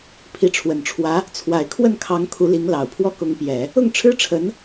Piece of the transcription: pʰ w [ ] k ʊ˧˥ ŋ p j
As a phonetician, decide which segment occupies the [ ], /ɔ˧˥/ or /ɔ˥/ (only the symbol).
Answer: ɔ˥